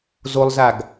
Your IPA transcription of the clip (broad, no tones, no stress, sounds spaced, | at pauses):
z o lˠ z a ɡ